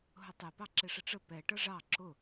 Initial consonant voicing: voiced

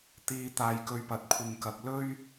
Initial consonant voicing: voiceless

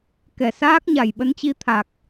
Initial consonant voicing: voiceless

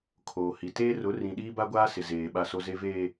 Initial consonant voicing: voiceless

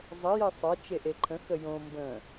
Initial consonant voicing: voiced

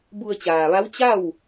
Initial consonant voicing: voiced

